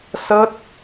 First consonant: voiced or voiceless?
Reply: voiceless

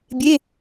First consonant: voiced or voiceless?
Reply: voiced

